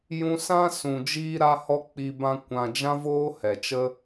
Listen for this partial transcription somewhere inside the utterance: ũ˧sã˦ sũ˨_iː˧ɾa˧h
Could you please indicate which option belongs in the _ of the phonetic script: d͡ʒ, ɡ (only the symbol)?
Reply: d͡ʒ